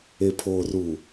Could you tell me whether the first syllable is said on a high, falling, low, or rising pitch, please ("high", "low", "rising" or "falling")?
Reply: low